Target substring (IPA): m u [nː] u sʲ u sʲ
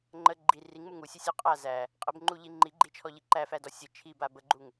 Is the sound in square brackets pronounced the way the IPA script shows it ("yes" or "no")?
no